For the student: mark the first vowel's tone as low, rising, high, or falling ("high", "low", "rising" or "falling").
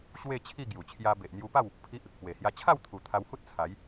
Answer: falling